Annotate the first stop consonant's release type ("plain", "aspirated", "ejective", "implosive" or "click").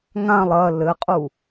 ejective